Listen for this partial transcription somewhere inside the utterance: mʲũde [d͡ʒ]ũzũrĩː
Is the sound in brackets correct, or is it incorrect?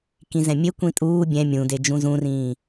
correct